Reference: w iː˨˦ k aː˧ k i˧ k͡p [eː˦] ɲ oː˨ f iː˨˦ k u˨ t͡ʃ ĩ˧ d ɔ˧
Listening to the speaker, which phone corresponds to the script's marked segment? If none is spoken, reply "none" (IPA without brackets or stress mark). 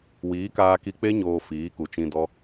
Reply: e˦